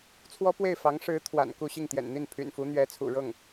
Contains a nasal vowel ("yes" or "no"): no